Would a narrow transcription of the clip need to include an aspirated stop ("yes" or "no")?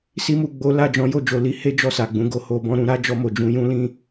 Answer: no